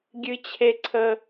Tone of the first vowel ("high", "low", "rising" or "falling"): high